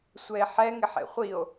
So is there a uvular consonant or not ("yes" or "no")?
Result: yes